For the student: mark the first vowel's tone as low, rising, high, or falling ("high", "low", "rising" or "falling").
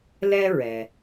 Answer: high